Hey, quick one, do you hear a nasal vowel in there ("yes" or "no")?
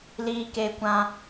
yes